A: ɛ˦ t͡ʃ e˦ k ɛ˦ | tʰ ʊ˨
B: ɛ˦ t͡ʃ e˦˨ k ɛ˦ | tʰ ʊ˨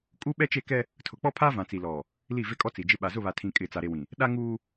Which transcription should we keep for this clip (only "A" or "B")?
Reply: B